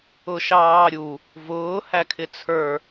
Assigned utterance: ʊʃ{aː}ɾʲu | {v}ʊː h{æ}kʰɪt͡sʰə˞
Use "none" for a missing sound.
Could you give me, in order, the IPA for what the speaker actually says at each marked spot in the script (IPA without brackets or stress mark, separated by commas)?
ɑː, v, æ